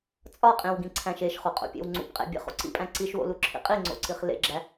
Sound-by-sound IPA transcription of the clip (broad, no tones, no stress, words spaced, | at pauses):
t͡sʼɒqʼĩwɡĩǀʰæ̃ʃ eʃχoqʼo̰pʲḛw ŋ͡ǀṵpqʼḛ bʲḛχo̰ǀḭpʼæ̃ ǀiʃwo̰luǁʰḭ qʼiŋ͡ǀo̰ǀiχ lḛɡ͡ǁæ